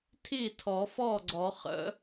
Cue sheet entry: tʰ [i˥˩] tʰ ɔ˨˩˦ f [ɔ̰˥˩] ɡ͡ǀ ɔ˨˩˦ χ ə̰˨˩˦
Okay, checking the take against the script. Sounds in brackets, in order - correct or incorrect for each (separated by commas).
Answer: correct, incorrect